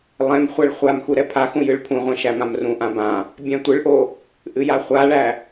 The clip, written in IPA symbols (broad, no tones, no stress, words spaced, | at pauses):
lˠɛ̃m χʷæɭχʷamxu ɾɛpʰaxũ jɨɭpʰũʁʷɛ̃ ʃæmãmrũʔã bã | bʲæ̃tʷɨɭʔo | ʔɨjaχʷaɭæ